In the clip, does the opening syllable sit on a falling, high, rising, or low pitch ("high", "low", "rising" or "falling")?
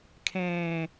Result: low